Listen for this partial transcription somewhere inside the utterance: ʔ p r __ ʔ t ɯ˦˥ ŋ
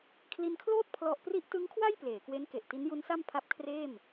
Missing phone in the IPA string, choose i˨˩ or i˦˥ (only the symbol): i˦˥